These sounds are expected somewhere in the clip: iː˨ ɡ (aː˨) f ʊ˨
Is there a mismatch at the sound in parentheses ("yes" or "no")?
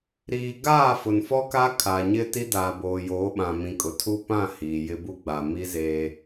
yes